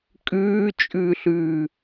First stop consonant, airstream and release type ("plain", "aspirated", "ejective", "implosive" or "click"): ejective